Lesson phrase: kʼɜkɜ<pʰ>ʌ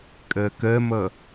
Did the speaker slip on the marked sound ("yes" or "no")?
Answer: yes